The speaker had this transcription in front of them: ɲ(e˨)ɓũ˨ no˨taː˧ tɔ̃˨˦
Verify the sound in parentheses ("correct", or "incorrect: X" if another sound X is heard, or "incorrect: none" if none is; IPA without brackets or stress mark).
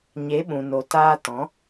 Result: incorrect: e˨˦